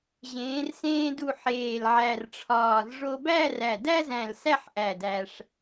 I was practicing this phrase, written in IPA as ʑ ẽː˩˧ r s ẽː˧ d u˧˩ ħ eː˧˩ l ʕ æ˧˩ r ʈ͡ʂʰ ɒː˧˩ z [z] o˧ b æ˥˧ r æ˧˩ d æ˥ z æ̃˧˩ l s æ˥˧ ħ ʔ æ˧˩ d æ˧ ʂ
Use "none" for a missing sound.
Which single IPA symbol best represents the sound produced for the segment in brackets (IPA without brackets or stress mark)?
ʐ